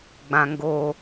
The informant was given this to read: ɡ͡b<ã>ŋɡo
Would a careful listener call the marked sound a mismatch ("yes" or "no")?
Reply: no